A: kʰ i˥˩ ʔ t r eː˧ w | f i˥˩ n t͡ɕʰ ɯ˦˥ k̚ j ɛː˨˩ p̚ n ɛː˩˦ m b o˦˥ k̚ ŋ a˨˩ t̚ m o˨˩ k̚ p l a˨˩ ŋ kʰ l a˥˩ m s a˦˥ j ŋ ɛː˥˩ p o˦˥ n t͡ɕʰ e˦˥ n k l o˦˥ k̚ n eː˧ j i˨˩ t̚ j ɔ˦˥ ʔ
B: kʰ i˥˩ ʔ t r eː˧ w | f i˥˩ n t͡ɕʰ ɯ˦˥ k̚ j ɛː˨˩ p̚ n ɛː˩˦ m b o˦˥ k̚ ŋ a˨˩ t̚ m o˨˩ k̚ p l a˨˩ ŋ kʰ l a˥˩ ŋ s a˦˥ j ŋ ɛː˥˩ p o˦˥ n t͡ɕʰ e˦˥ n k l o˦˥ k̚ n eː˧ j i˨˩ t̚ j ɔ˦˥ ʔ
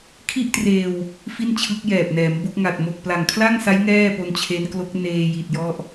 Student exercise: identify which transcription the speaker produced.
B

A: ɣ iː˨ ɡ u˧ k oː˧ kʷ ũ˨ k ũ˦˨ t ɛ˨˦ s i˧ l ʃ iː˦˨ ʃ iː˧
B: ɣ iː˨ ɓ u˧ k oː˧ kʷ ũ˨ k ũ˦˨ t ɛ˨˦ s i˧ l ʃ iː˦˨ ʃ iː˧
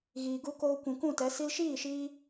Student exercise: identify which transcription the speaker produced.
A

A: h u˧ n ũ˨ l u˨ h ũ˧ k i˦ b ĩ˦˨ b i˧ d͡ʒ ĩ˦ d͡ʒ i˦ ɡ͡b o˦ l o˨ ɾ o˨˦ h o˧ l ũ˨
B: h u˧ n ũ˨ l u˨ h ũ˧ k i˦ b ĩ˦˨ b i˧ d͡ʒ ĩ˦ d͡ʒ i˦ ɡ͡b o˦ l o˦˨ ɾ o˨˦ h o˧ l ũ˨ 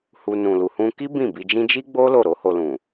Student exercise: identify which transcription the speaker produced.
B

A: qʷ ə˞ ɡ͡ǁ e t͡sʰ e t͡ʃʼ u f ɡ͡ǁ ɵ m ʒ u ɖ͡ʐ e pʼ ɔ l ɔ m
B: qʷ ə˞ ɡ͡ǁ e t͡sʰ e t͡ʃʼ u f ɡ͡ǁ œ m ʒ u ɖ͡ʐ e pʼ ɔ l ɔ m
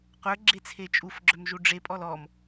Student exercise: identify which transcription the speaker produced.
B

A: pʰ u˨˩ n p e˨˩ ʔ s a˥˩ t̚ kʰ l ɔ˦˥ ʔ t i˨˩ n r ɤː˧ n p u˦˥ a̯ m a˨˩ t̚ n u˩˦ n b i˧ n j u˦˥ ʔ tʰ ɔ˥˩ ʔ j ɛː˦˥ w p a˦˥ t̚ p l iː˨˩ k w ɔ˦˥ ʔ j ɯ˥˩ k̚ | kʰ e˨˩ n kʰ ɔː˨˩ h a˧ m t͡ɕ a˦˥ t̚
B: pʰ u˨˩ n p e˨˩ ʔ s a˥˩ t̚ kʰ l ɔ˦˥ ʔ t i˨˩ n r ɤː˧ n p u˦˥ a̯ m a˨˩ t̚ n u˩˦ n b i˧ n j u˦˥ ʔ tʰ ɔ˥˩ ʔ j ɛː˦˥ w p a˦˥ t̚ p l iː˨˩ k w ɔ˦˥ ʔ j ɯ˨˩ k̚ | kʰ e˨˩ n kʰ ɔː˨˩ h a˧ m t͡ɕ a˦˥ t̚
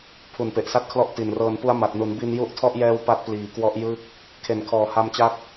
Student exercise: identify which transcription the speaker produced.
A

